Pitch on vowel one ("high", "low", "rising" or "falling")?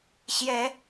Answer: rising